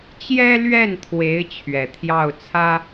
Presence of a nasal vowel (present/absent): absent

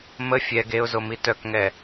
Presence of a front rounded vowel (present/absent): present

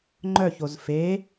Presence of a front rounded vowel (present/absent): present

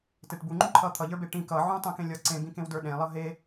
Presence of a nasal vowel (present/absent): present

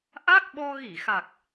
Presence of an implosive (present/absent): present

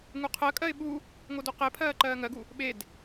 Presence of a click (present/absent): present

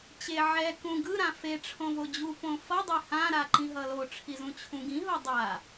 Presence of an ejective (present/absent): absent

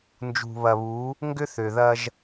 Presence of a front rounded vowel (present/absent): present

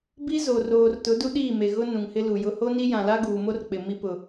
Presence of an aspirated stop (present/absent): absent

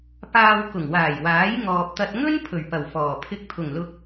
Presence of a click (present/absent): absent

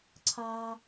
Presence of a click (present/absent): present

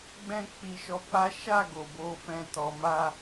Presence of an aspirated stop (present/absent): absent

